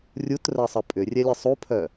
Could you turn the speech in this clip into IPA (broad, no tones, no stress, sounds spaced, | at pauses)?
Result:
rʲ u t r ɜ sˤ ə pʼ ʏ rʲ ɛ lʲ ə sˤ u pʰ œ